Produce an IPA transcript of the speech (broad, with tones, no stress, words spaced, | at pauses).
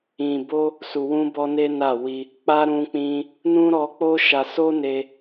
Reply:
ĩ˨bo˧ | su˨wũ˧bɔ˧ ne˦na˦˨ wi˧ | k͡pa˦ ɾũ˧k͡pĩ˧ | nũ˦ ɾɔ˧k͡po˦ʃa˧ so˦ne˧